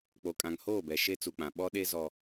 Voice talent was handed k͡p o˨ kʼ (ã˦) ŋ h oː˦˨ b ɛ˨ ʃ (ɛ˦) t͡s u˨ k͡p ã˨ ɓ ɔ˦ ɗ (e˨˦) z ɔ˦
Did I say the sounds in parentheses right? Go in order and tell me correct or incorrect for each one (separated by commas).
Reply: incorrect, incorrect, incorrect